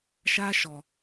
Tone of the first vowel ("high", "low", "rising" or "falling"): high